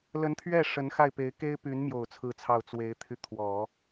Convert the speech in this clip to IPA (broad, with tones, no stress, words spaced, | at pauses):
lə˧˥nt̪ʰɥɛ˥˩ ʂə˧˥nxa˥˩ɪ̯pe˧˥ɪ̯ ke˥ɪ̯ py˧˥nmjo˨˩ʊ̯ t͡sʰɹ̩˥˧t͡sʰɑ˥˩ʊ̯ t͡swe˧˥ɪ̯t̪ʰy˧t̪ʰwɔ˨˩˦